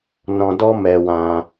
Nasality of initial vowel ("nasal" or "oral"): nasal